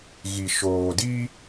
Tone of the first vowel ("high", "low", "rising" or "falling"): low